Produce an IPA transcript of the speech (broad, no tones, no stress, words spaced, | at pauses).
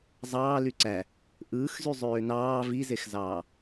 zˤɑː lyǀæ | ʔɯːxzy zˤøːnɑː vizexzɑː